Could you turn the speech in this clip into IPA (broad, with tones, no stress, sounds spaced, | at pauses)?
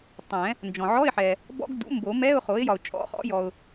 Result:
tˤ ɛ̃˨˩˦ | n d͡ʒ ɔ̃˨ ʕ ɔ˧˥˧ ɪ̯ ħ ɛ˨ | b ɔ̰˧˥˧ ɡ d ṵ˩˥ m b o˨˩˦ m ɛ˧˥˧ ʊ̯ χ o˩˥ ɪ̯ j ɒ˨ ʊ̯ t͡ʃʼ ɔ̰˧˥˧ χ ɔ̰˩˥ j ɔ˨ ʊ̯